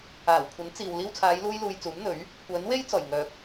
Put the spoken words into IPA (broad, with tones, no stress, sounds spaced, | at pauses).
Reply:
aː˨˩ w kʷʰ ɐ˨˥ n t͡s iː˨ w l iː˧ w t͡sʰ aː˨˧ j l uː˥ j l uː˧ j t͡s uː˨˥ m n̪ ɵ˨˥ ɥ | kʷ œː˨˥ n w e˥ j t͡s ɔː˨˩ j ŋ œː˨ k̚